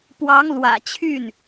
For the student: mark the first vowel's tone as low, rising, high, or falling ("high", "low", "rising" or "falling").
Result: rising